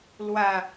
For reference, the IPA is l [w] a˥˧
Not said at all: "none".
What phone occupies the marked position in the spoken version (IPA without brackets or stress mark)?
w